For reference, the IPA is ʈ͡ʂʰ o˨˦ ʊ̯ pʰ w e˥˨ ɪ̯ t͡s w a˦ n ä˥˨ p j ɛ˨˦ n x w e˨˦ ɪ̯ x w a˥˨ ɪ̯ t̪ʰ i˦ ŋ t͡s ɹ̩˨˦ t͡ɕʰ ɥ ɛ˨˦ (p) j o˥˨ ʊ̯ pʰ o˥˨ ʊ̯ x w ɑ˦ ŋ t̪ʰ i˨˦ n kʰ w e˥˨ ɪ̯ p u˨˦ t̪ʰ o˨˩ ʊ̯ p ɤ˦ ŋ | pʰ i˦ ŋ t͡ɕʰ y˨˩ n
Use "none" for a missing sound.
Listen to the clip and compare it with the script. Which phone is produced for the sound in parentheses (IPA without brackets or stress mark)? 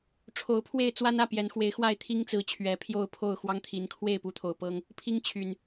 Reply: pʰ